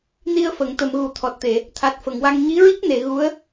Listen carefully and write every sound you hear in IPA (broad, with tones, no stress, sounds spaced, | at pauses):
n i˧ ə̯ f ə˨˩˨ ŋ t̪ ə˨˩˨ m ɣ u˨˩˦ t̪ʰ ɔ˨˩ t̚ t̪ e˨˩˨ | t̪ʰ a˨˩ t̚ f ə˨˩˨ ŋ w a˧ ŋ ɲ i˧˥ ɹ i˦˥ k̚ n e˨˩˨ ɣ u˧˥ ə̯